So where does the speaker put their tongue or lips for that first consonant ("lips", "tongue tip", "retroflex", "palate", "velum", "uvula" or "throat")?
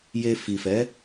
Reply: palate